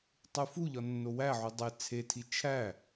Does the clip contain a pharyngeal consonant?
yes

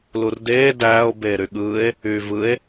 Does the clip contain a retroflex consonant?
no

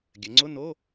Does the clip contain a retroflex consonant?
no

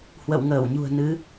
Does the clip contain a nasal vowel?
no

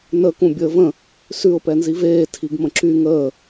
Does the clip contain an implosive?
no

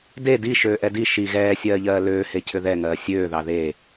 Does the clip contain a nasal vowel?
no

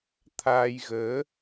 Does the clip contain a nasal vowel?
no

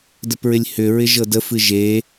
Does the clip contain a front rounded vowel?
yes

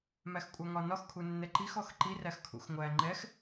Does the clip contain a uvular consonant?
no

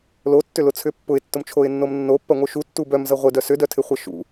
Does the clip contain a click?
no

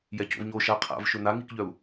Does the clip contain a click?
no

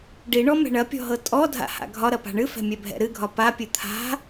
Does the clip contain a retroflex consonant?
yes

